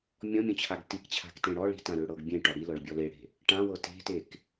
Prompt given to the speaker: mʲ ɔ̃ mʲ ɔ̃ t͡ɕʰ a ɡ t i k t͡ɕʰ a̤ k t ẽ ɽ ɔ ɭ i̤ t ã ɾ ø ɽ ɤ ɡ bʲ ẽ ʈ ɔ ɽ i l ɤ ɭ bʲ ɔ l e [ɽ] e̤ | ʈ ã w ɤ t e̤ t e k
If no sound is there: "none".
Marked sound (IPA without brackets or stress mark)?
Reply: ɽ